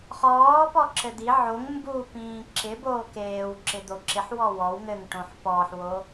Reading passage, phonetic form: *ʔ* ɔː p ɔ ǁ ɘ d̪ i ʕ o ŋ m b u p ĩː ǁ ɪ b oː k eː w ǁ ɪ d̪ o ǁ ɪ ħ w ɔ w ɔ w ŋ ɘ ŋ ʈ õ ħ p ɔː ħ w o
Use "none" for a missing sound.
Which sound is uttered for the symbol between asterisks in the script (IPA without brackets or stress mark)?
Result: χ